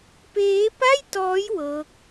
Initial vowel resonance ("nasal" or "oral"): oral